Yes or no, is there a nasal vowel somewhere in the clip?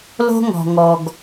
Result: no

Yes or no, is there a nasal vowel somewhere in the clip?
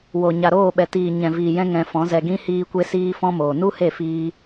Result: yes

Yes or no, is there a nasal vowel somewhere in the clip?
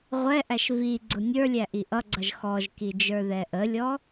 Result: no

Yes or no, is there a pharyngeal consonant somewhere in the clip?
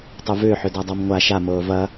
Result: yes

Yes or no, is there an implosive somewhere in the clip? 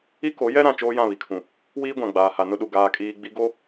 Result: yes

